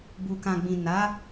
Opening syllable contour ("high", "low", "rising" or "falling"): low